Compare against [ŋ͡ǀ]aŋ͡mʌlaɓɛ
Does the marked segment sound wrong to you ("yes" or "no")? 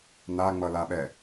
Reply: yes